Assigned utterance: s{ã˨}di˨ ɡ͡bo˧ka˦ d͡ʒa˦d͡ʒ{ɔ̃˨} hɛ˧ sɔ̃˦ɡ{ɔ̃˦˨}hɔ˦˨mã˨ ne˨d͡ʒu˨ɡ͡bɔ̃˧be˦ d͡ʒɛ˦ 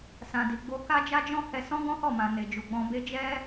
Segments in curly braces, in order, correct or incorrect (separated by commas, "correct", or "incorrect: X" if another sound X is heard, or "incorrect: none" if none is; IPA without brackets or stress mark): correct, incorrect: ɔ̃˦, incorrect: ɔ̃˦